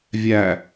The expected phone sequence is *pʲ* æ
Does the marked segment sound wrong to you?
yes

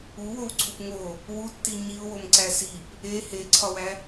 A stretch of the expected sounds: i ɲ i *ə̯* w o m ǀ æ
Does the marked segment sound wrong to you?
yes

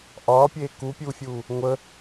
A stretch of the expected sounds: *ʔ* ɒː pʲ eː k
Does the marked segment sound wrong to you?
no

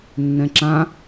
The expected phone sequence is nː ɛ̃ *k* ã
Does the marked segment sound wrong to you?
yes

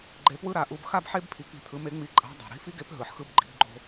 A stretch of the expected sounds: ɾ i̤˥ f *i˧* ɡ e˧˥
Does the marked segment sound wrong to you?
yes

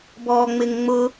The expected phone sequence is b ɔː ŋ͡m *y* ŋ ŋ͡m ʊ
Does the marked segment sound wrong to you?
yes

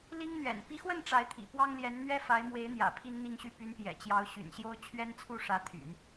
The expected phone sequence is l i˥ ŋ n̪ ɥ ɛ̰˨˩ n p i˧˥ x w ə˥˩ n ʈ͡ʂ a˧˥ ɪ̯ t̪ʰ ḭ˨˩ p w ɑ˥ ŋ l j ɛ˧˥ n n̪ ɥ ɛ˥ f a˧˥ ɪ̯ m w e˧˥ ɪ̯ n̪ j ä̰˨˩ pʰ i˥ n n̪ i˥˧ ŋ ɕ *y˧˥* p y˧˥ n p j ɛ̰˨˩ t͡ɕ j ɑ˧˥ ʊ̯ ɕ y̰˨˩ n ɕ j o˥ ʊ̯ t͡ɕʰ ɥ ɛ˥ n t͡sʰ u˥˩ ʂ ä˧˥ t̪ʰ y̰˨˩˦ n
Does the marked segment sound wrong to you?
yes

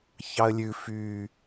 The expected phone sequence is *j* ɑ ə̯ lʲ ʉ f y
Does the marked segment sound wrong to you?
yes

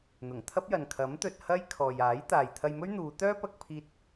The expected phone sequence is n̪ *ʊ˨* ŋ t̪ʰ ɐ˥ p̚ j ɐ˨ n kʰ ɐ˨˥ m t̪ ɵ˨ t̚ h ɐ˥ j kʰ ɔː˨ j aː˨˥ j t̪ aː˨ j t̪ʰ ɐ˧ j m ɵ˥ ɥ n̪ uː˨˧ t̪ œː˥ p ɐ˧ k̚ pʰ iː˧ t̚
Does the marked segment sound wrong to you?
yes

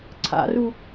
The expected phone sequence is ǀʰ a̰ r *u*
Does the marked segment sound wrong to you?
no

